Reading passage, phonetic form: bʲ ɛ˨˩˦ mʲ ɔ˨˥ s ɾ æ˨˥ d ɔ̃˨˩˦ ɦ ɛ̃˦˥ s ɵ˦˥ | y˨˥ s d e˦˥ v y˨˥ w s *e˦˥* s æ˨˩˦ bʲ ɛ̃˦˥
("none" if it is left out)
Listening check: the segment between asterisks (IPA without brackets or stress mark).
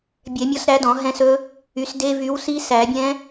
i˦˥